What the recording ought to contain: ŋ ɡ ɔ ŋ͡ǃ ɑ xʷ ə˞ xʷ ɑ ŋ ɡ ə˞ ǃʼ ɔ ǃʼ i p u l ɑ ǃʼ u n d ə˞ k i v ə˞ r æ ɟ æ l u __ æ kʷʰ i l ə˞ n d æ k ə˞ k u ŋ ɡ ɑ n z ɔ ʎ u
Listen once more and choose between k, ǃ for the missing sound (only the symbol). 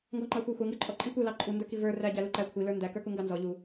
ǃ